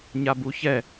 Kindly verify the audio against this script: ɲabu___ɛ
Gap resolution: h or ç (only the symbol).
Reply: ç